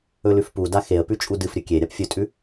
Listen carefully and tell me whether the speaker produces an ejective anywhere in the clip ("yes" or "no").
yes